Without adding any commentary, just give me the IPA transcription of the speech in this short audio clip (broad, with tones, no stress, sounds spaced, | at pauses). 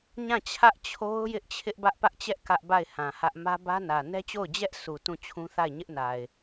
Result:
ɲ ã˦˨ t͡ɕʰ ä˦ ʔ t͡ɕʰ o˦ ʊ̯ j ɪ˦ ʔ t͡ɕʰ ɪ˦ ʔ b ä˦ ʔ p ä˦ ʔ t͡ɕ ɛ˦ ʔ k ä˦ ʔ b a˦˨ ɪ̯ h ã˨ h ä˦ ʔ m ä˦ b ä˦ n ä˨ n ɛ˦ t͡ɕ o˦˨ ʊ̯ d͡ʑ ɛ˦ ʔ s u˨ t ũ˦˨ t͡ɕʰ ũ˦ θ a˦˨ ɪ̯ ɲ ɪ˦ ʔ n a˨ ɪ̯